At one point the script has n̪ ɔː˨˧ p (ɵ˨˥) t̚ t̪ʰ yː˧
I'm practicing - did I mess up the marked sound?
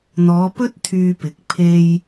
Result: yes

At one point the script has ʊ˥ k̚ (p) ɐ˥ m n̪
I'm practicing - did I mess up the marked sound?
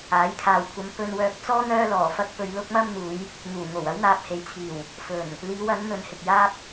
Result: yes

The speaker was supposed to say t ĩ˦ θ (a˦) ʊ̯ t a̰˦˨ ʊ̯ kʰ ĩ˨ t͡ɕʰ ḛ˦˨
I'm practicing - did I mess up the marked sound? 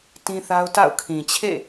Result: no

